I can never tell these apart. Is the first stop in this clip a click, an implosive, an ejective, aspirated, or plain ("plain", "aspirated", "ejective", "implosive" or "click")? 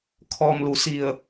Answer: aspirated